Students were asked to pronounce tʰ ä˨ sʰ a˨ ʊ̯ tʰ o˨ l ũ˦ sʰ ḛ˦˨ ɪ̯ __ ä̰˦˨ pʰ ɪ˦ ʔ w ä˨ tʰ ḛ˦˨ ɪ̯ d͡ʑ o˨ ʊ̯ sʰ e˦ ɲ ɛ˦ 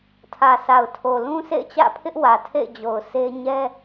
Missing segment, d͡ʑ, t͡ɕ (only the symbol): t͡ɕ